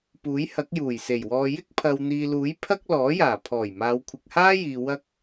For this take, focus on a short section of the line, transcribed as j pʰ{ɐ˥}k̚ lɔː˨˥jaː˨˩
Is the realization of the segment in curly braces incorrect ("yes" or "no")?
no